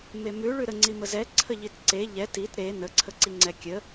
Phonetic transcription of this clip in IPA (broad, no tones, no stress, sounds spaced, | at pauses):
m e m ʉ ɭ ʉ ɾ ə ŋ͡ǀ i m ə z ɛ ǀʰ ə ʎ i t ǀ e ʎ ɛ t i t ɾ e n ə ǀʰ ə ǀ i ŋ͡ǀ ɛ kʲ ə